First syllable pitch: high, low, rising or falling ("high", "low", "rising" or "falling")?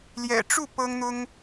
low